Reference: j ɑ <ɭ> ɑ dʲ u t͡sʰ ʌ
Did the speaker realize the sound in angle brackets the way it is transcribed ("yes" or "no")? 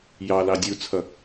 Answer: no